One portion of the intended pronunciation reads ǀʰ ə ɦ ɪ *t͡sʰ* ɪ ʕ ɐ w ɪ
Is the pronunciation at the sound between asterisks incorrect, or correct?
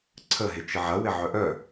incorrect